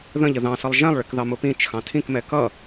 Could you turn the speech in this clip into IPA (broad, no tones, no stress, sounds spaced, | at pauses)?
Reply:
ð ə̃ ʎ ə ð ɑ̃ s ʌ lˠ ʒ ɛ̃ lˠ ɭ ɪ k ð ɑ m ʊ p ĩ t͡ʃ x ɑ̃ tʰ ĩ k m ɛ k ʌ